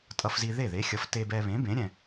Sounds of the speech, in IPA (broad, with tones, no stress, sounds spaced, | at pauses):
tʼ ʌ˧ f z i˧ ð e˥˩ ð e˨˥ xʲ ʌ˨˥ f t e˧ b ɛ˧ β ẽ˨˥ b ẽ˨˥ ɾʲ ɛ̃˧